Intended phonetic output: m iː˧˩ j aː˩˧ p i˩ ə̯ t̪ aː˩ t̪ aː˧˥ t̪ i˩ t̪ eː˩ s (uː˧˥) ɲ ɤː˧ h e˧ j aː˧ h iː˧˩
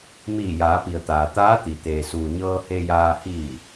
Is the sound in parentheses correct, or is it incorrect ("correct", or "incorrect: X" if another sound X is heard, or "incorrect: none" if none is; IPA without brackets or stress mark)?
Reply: incorrect: uː˩